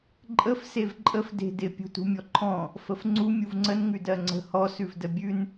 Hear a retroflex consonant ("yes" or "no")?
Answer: no